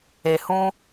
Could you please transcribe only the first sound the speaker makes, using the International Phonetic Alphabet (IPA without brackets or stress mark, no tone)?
e